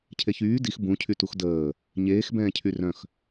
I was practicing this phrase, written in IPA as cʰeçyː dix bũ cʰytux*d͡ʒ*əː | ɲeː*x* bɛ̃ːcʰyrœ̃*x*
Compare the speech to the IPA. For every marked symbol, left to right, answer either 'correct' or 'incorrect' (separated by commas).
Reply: incorrect, correct, correct